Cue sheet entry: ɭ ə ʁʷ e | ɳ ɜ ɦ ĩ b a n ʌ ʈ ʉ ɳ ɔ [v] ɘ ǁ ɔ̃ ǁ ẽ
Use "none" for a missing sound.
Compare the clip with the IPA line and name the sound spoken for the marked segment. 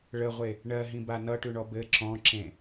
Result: b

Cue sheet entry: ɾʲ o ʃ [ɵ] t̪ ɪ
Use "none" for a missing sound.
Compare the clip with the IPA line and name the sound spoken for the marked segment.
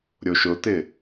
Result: ʊ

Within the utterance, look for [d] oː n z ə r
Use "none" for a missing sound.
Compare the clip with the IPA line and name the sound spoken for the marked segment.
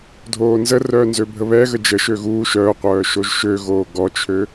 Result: dʱ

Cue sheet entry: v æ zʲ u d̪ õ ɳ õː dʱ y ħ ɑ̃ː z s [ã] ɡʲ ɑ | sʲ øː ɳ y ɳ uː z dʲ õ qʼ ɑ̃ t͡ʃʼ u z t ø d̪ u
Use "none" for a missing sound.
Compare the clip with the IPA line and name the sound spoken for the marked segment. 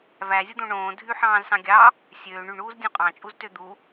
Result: ɑ̃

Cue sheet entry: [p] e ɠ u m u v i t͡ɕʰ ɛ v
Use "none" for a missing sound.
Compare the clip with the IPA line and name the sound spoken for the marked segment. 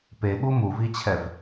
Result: p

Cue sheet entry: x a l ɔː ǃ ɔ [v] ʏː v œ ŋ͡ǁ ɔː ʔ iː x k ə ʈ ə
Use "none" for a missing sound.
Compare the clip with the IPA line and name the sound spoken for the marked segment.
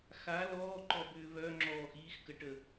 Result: b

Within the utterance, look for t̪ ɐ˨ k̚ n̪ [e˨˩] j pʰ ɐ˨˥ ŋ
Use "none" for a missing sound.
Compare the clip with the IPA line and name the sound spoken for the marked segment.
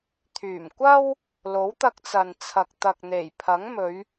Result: e˨˩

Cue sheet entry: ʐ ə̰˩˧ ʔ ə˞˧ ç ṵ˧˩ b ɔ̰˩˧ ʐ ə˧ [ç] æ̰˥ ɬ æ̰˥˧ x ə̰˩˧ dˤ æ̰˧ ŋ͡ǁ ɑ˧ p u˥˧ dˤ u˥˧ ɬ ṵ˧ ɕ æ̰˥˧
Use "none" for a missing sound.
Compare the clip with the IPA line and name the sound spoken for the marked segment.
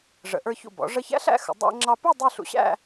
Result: ç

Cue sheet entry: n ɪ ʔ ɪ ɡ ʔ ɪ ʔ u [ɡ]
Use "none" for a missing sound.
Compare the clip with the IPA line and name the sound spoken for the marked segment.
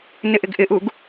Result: ɡ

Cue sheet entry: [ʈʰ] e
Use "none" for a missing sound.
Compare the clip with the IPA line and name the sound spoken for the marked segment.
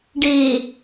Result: ɖ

